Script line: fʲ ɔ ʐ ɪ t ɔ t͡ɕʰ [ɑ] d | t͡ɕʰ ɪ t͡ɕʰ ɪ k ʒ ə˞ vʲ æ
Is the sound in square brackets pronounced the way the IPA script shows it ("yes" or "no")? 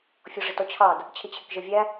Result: yes